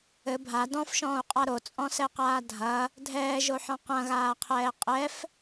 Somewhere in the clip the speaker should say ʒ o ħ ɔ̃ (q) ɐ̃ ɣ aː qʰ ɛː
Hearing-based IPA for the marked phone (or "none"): q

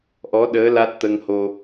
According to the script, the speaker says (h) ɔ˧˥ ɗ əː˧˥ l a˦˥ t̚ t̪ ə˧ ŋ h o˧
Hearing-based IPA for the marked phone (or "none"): ʔ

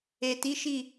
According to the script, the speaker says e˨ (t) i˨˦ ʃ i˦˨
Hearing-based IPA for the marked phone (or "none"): t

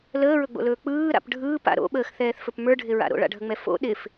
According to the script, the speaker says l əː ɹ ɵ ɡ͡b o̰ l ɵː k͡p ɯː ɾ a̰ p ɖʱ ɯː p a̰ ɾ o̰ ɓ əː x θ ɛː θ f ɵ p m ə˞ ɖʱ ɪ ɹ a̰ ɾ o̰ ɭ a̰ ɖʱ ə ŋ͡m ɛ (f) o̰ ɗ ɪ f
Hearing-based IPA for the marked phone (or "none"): f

